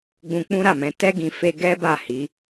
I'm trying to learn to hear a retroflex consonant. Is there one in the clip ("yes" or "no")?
no